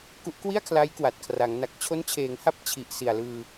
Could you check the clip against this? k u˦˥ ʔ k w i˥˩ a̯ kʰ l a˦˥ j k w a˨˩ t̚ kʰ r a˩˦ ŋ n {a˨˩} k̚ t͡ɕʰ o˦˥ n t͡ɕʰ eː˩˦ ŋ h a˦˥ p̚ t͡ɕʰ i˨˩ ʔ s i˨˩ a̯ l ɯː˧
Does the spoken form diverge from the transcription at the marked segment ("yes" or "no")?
no